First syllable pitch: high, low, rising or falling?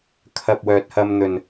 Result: low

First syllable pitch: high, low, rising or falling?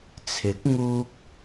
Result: rising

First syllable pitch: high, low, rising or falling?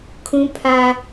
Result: high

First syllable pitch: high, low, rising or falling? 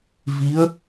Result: rising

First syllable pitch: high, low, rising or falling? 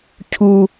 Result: low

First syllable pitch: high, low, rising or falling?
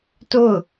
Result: falling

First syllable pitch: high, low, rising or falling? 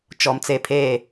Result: low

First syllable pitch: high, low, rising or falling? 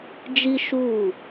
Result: high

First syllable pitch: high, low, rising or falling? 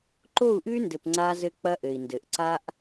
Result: falling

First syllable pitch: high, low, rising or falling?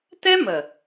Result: high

